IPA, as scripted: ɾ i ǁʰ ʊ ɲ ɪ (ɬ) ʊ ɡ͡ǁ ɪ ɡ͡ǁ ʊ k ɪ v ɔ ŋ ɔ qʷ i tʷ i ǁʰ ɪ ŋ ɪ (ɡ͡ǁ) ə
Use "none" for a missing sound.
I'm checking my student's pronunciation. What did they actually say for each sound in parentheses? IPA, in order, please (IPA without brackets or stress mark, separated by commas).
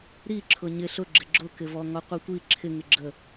ɬ, ɡ͡ǁ